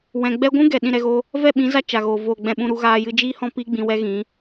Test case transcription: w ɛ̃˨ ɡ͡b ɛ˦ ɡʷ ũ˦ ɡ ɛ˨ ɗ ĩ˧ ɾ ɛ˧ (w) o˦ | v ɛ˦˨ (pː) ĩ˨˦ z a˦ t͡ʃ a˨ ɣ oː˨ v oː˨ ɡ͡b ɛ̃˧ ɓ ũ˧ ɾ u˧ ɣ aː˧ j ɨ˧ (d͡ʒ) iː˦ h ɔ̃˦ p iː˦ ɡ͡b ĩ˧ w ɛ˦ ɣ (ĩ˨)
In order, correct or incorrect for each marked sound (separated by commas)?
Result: incorrect, incorrect, correct, incorrect